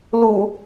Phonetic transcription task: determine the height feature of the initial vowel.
high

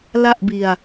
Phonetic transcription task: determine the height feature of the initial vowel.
low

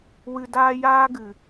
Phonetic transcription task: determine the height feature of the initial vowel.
high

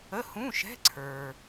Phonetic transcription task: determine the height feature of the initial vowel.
mid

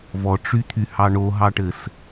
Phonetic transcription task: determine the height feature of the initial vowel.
mid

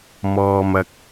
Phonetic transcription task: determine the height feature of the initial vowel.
mid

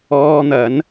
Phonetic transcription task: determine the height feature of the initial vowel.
mid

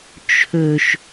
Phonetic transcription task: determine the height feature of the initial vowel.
mid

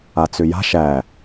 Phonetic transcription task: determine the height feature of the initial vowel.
low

